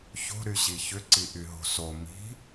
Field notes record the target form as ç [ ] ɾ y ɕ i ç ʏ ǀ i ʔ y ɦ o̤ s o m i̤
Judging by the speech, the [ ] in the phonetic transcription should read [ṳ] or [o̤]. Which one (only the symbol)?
o̤